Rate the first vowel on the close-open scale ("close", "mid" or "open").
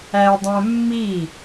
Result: open